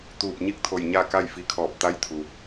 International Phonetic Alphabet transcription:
t̪ uː˧˩ p̚ ɲ i˥˨ k̚ t̪ʰ o˧˩ j ɲ a˥˨ k a˥˨ j f i˧ kʰ ɔː˧˩ p̚ t̪ a˧˥ j t̪ʰ u˩

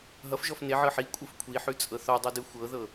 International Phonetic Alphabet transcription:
ɦ ʌ f ʒ ɔ f n e ʕ ɤ ħ i kʷʼ ɯ f kʷʰ i ħ ʉ t͡sʼ ɤ θ ɔ dˤ ɯ d ɯ xʷ ɤ ð ɤ

